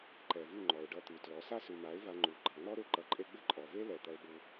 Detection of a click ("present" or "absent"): present